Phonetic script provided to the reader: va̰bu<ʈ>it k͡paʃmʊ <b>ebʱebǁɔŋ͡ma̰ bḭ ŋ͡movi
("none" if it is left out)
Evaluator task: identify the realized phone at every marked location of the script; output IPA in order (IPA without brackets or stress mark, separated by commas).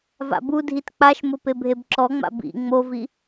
dʱ, p